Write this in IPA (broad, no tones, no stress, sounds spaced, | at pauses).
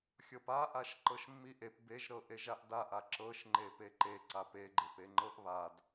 xʲ ɤ p a ʔ a ʃ ǃ ɤ ʃ mː i ʔ e p b e ʒ ɾ ɤ ʔ e ʒ a ʔ d a ʔ a ǁ ɤ ʃ ŋ͡ǃ e p e ǃ e ǀ a p e ɡ͡ǃ e p e ŋ͡ǃ ɤ ʔ β a d